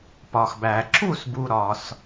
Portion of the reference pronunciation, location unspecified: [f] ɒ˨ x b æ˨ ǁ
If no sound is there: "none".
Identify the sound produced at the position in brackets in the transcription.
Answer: p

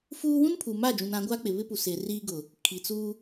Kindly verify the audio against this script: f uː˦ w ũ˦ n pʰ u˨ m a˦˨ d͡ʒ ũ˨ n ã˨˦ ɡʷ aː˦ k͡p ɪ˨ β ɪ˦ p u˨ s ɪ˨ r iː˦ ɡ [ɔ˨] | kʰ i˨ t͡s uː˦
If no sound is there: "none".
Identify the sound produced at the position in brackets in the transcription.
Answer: ʊ˨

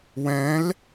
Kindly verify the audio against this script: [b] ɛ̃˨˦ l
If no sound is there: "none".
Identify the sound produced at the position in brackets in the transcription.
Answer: w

